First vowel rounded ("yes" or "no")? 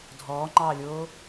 yes